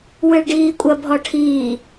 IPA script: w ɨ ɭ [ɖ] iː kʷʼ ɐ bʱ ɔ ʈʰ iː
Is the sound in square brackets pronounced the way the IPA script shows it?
yes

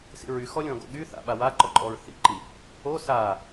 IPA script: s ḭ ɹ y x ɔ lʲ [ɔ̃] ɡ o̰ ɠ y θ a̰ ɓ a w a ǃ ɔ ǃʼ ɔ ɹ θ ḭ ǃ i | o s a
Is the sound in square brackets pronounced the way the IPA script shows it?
yes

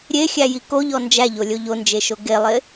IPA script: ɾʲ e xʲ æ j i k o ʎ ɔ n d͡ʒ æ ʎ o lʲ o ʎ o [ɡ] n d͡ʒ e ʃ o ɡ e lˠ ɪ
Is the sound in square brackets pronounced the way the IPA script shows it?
no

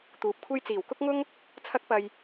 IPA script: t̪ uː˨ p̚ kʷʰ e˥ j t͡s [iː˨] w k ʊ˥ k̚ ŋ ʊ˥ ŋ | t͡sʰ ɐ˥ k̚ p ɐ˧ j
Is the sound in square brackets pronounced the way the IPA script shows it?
no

